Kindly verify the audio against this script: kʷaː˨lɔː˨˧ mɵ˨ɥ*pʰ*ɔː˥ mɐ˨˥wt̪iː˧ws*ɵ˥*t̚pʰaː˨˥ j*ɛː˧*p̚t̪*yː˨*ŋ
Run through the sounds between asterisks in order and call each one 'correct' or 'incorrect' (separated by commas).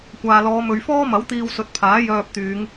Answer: incorrect, incorrect, incorrect, incorrect